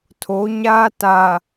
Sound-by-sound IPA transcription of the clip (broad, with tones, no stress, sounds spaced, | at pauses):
tʰ o˨˦ ɲ aː˦ t a˨